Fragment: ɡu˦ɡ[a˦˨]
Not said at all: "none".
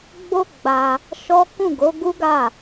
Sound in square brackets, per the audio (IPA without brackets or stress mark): a˦˨